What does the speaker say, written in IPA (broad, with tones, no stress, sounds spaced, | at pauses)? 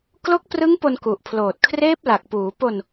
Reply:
k l o˦˥ k̚ p r ɯ˦˥ ŋ p o˧ n k u˨˩ ʔ pʰ l oː˨˩ t̚ kʰ r eː˦˥ p̚ l a˨˩ k̚ p uː˩˦ p o˧ n